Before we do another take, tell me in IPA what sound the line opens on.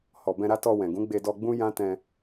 h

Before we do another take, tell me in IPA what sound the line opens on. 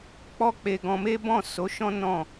k͡p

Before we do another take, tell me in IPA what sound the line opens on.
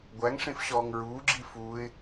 ɡʷ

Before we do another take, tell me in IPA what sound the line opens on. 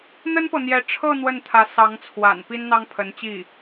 n̪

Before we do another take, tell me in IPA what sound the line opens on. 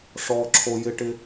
ʂ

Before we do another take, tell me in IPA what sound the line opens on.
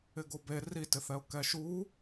ɪ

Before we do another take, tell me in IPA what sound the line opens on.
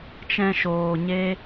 t͡ʃ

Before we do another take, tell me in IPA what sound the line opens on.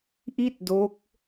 ʔ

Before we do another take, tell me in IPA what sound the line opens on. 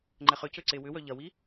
ŋ͡ǃ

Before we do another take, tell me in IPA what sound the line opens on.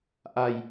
ʔ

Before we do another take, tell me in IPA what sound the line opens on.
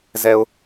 z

